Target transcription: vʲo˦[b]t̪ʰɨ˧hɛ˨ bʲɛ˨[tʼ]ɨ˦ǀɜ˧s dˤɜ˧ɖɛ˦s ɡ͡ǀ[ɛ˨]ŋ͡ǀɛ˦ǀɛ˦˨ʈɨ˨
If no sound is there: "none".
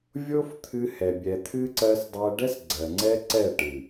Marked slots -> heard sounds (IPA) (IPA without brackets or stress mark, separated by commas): f, t̪ʰ, ɜ˨